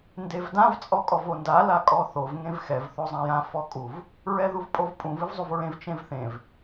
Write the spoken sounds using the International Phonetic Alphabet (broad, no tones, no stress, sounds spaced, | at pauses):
n d e v d ã v t͡sʼ ɔ kʼ ɔ v o n d a l a kʼ ɔ θ o v ŋ ẽ v x ɛ v θ o zˤ ã j ã f ɔ kʼ u v | ɹ ɛ ð u v pʼ o v pʼ ũ v ɨ v zˤ u v ɹ ẽ v t͡ʃ ẽ v θ ẽ v